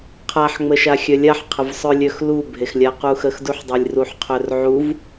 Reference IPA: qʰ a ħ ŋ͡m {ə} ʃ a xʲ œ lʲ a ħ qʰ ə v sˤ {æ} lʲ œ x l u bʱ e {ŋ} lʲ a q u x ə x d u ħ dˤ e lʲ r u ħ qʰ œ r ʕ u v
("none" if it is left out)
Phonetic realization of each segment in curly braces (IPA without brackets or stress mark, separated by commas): ə, œ, x